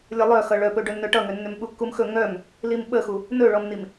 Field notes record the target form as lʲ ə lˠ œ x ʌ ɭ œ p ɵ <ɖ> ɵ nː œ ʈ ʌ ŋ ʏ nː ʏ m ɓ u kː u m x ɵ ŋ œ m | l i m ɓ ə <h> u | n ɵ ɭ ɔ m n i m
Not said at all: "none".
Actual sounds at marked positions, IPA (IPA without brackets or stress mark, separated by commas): ɖ, x